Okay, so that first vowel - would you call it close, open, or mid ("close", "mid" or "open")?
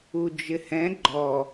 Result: close